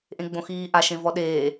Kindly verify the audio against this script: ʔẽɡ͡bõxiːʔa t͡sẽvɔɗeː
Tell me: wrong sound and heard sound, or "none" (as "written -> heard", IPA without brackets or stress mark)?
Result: t͡s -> ʃ